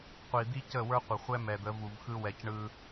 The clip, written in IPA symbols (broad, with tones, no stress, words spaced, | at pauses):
qʷi˨d̪i˦ cə˦˨wə˞˦qʷə˨χʷɛ˦ mɛ˨d̪ə˨˦ vu˨vxɯ˦wɛ˨cɳɯ˦